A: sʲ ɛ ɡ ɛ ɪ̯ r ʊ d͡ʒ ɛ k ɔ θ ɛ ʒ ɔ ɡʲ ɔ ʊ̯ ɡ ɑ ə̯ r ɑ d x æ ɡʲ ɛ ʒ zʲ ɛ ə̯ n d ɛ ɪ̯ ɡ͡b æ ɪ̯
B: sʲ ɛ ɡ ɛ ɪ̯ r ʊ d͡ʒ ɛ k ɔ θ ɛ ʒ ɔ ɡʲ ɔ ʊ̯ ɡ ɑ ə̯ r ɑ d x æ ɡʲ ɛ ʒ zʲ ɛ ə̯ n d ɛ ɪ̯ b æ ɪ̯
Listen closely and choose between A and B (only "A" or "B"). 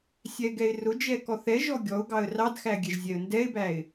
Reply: B